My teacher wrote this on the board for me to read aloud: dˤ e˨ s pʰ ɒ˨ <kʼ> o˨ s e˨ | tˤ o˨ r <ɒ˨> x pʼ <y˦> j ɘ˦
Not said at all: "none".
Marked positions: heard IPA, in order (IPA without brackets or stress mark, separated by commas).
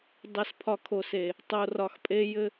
kʰ, ɒ˨, e˦